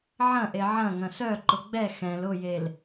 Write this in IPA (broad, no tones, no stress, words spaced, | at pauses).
ʕɐ̃ʔe ʕɐ̃ ŋɐ̃sœǃʊ ɡ͡bɛ xɛ̃l ʊjel